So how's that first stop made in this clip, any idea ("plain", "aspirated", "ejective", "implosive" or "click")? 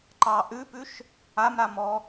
click